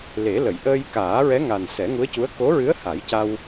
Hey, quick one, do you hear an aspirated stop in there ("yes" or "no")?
no